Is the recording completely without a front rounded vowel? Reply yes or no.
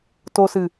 yes